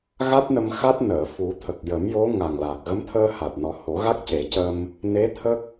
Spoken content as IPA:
ɣ a˦˥ t̚ n ə˧ m x a˦˥ t̚ n əː˨˩˨ f u˨˩˦ t̪ʰ ə˨˩ k̚ j ə˨˩˦ m j o˧˥ ŋ a˨˩ ŋ l a˨˩ k̚ ɣ ə˧˥ m t̪ʰ əː˧ h a˨˩ t̚ n ɔ˨˩˦ h o˨˩˦ ɣ a˦˥ k̚ c e˨˩˦ c ə˧ m | n e˧˥ t̪ʰ ə˦˥ k̚

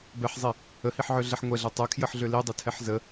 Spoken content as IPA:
b ɛ ħ zˤ i | ə h i ħ ʕ ø ɮ ɛ ħ ŋʷ ɛ ɮ ɛ tˤ ɛ kʰ j ə ħ ɮ ø l i dˤ ə tʰ ɛ ħ z ə

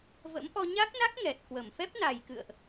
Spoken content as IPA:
v ə̰˧˥ m ʔ ɔ˧ ɲ a˦˥ k̚ n a˦˥ k̚ ŋ ɛ˨˩ t̚ k w ə˧˩ m f ɛ˦˥ p̚ n a˨˩ j k ɨ̰˧˨ ə̯ ʔ

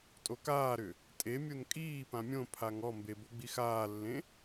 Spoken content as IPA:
tʼ o k aː ɾ ʏ | tʼ e mʲ o n kʼ iː p ã mʲ õ pʰ a ŋ ɔ m b e b o ɡ͡b i x aː lː ẽ

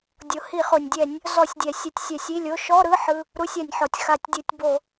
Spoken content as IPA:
dʲ o˩ h i˧˩˧ χ o˩ nʲ dʲ ɛ˧˩˧ nʲ | z ɔ˧˩˧ sʲ dʲ ɛ˩ sʲ ɯ˧˩˧ tʲ sʲ ɛ˧˩˧ sʲ i˧˥˧ lʲ o˧˥˧ ʃ ɔ˧˥˧ ɾ ɯ˧˥˧ ħ ɯ˧˥˧ | ɾ u˧˥˧ sʲ a˧˩˧ nʲ ħ ɔ˩ tʲ x a˧˩˧ tʲ dʲ ɯ˧˩˧ tʲ b o˧˩˧

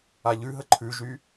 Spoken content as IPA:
a ʎ ʉ ɦ ə ǃʰ ʉ ʒ y

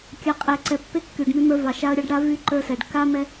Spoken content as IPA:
kʲ a˨ qʼ ɛ˨ ǀ ɛ˨ pː e˦ kː y˨ ɖ m y˦ m ə˞˦ v ɑ˨ ʃ a˦ ə̯ ɾʲ ɑ˦ ɖ ɽ a˦ v y˦ ǃ ə˞˦ s ɛ˨ ɖ k a˦ m ɛ˦

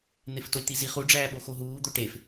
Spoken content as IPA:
n̪ e f t o lʲ t̪ i z i χ u ɖ͡ʐ æː ɓ o x o ɦ uː d̪ o ʈ e f

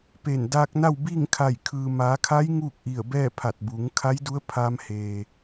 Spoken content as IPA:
p e˧˩ n d aː˧ k̚ n a˥˨ w b iː˥˨ ŋ kʰ a˧˩ j kʰ ɯː˩ m aː˩˧ kʰ a˧˥ j ŋ uː˥˨ k̚ ʔ i˧˩ ə̯ b ɛː˥˨ pʰ a˧˩ t̚ b uː˩˧ ŋ kʰ a˧˥ j d u˧˥ ə̯ pʰ a˧ m h eː˩

